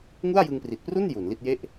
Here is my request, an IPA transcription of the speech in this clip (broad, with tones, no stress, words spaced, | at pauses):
ŋu˥˩a̯jɯ˧ŋpri˨˩t̚pru˥˩n ju˩˦nli˥˩t̚ je˥˩ʔ